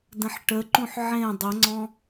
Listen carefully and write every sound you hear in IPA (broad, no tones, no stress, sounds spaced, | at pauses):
d ə̃ ħ ʈ ə ǃ ũ ħ ʕ ẽ dˤ ə ŋ͡ǀ ɔ̃